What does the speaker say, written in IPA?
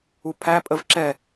upʰæ pʼəvǁɛ

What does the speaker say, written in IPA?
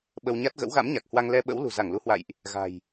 ɓə˧wɲa˦˥t̚ ɣə̰˧˥wɣa̰˧˥mɲa˨˩k̚hwa˧ŋ lɛ˧ɓə̰˧˥wlṳ˨˩ za˧˩ŋlu˨˦hwa̰˧˨jʔ | ɣa̤˨˩j

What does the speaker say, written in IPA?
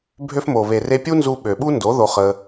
bʱø˧fmo˨ βe˨re˧pʲu˦nzu˧ ɓø˨ɓu˦ ndo˨˦ ðo˧χə˧

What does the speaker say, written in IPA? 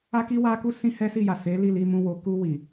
a˦ki˦wa˦ku˦ sĩ˦hɛ˦si˦˨ja˨ se˨˦li˦˨li˧mũ˧ wo˨ku˧ wi˨

